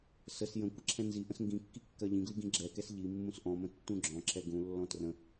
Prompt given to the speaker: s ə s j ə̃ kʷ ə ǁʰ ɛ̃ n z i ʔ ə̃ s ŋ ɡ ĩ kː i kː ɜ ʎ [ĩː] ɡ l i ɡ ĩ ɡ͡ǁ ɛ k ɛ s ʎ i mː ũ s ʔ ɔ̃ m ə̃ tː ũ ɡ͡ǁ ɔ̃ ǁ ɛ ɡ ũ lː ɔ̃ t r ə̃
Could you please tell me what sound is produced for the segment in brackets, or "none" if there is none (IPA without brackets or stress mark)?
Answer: ĩ